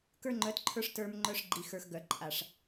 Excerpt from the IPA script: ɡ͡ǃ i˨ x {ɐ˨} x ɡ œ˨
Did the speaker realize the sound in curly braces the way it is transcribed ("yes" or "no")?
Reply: no